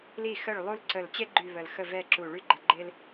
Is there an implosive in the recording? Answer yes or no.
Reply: no